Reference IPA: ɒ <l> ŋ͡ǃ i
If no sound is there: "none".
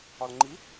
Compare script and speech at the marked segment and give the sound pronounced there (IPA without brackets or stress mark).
l